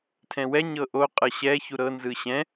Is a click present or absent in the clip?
absent